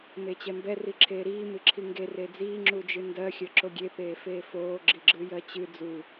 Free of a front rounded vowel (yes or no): yes